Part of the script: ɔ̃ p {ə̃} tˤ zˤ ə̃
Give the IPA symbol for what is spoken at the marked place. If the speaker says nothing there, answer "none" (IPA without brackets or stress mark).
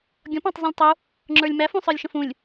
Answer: ɑ̃